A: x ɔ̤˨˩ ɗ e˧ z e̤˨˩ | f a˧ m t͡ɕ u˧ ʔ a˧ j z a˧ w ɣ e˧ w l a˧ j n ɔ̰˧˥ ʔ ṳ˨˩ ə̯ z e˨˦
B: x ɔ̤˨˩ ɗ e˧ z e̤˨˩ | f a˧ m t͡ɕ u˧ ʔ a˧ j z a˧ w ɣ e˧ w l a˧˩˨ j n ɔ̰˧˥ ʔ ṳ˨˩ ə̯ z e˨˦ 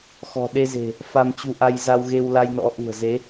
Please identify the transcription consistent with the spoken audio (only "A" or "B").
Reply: A